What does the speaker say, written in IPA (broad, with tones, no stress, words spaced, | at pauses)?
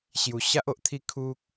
ɕju˧ɕa˦ʔo˨ʔt̪ʰi˥˧ kʰu˦k̚